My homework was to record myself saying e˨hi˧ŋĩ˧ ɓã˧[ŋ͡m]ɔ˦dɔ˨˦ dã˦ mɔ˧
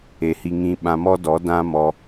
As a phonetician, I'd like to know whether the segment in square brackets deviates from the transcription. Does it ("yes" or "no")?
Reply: yes